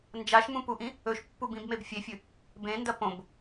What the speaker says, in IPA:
n d͡ʒ a ʃ m ũ p u ʔ ĩ | ɵ ʃ pː u b ĩ b m e b fʲ e fʲ ɨ | b ẽ n d ɐ p õ b

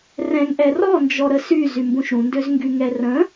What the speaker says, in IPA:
r ɛ̃ ŋ ʔ ɛ r ɔ n d͡ʒ ɔ ɾ ə s y z y m b ũ ʃ ɾ ũ n d ø z ŋ ɡ y ŋ ɛ r ə̃

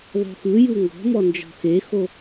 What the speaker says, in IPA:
ðˤ o̤ x ɯ j u ŋ ɡ ɔ̤ m ɔ n d͡ʒ ɔ̤ x e x o

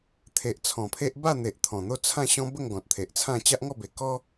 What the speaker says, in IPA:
t̪ʰ e˨ ʔ t͡sʰ ɔ̃˨˩ pʰ e˦ ʔ b a˥˧ n̪ e˨ ʔ t̪ʰ ɔ̃˨˩ n̪ o˥˧ t͡sʰ ã˥˧ ɕ ɔ̃˦ b ə˥˧ ŋ ɡ ɔ̃˨ t̚ t̪ʰ e˨ ʔ t͡sʰ ã˥˧ t͡ɕ a˦ ʔ ŋ ɔ˥˧ b e˨˩ k ɔ˦

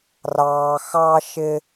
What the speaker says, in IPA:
r ɑː˧ x ɑ˥ ʃ ɪ˥

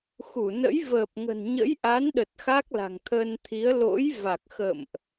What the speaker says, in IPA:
x u˧˩ n ə̰˧˥ j v əː˨˩ p̚ ŋ ə̤˨˩ n ɲ ə̰˧˥ j ʔ a˨˦ n ɗ ə˨˩ t̚ x a˦˥ k̚ l a̤˨˩ ŋ t̪ʰ ə˧ n t̪ʰ i˨˦ ə̯ l o̰˧˥ j v a˨˩ k̚ x ə̰˧˨ m ʔ

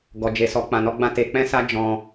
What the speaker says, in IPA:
ɡ ɔ˨ d͡ʒ e˨ s ɔ˨ k͡p ã˧ n ɔ˦ ɡ͡b ã˦˨ t e˧ k͡p ɛ̃˦ s a˦ d͡ʒ ɔ̃˧

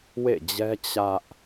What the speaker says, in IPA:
w ḛ˦˨ d͡ʑ ɛ˦ t͡ɕ ä˦ ʔ

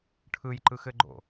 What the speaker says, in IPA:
ʈʰ ɯ j ǃ ɯ x ɘ ɡ͡ǃ o̰

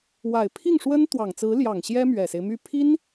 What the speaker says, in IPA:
w a˨˩ ɪ̯ pʰ i˥˩ ŋ ʂ w ə˥ n t̪ w ɑ˨˩ ŋ t͡s ɹ̩˧˥ l j ɑ˨˩ ŋ ɕ j ɛ˥ m ɥ ɛ˨˩ s e˦ ɪ̯ m y˥˩ pʰ i˥ n

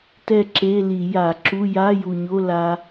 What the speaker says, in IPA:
t ɛ˥˨ ǁ e˧˥˧ l i˧˩˧ j a˧˩˧ ǁ u˧˥˧ j a˧˥˧ j u˨˩ ɲ o˧˥˧ l a˦˥

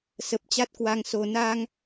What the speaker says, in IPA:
s ə˨˩ p̚ t͡ɕ a˦˥ t̚ k w a˧ ŋ s o˨˩ n a˧ ŋ

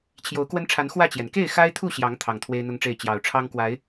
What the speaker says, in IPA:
t͡ɕʰ j o˨˦ ʊ̯ k w ə˦ n ʈ͡ʂʰ a˨˦ n x w ä˥˨ t͡ɕ j ɛ˩ n k e˥˨ ɪ̯ x a˦ ɪ̯ t̪ʰ u˥˨ ɕ j ɑ˨˦ ŋ t̪ʰ ɑ˨˩ ŋ t̪ʰ w e˦ ɪ̯ n̪ ʊ˦ ŋ ʈ͡ʂ e˥˨ ɪ̯ t͡ɕ j ɑ˨˩ ʊ̯ ʈ͡ʂʰ ɑ˦ ŋ k w a˨˦ ɪ̯

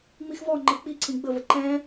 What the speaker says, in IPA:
ŋ͡m i x v ɔ ŋ͡ǃ ɤ k͡p i ǀʰ ĩ ɡ͡b ə v ə ǃ ɛ̃

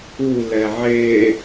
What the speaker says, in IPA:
u l ɛ ʕ e

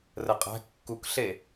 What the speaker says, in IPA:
r ə qʼ æ̤ kː u k ɬ e

